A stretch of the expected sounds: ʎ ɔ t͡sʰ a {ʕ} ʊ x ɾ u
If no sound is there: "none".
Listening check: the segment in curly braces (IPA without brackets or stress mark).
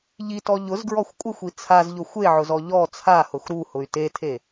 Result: h